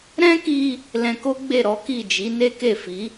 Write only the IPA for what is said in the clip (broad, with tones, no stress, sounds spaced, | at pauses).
ɾ ɛ̃˦ k i˧ | l ɛ̃˧ k o˦ ɡ͡b e˦˨ ɾ ɔ˨˦ k i˦˨ d͡ʒ i˨˦ n e˦ k e˦˨ f i˨˦